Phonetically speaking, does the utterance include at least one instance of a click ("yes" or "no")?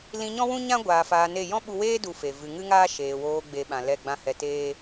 no